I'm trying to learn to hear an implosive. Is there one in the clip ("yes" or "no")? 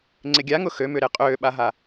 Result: yes